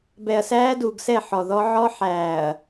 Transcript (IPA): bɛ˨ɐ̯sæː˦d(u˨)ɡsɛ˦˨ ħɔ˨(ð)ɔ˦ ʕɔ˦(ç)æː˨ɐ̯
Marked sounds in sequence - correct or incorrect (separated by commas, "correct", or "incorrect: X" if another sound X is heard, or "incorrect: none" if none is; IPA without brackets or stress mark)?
correct, correct, incorrect: ħ